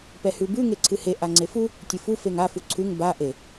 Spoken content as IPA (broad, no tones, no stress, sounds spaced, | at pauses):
p ɛ h ʉ b ʉ ŋ e ǀʰ ɨ h e ʔ a ŋ͡ǀ e f u | tʲ ɨ f u f e ŋ a f u ǀʰ ʉ ŋ b a ʔ e